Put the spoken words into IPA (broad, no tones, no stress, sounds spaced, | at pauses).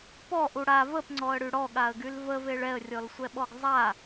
p ɔ ʔ u ɽ a v ə p ŋ͡ǀ ɔ ə̯ ɽ y ɽ ɔ ɠ a ə̯ ɡ y l v ə v e ɭ ɛ ə̯ rʲ ɔ l sʷ ɛ ɓ ɔ ɡ zˤ a